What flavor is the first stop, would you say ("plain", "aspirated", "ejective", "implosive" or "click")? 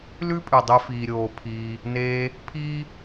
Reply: ejective